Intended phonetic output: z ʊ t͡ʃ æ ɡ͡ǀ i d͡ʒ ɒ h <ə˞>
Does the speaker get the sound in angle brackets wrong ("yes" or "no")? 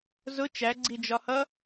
yes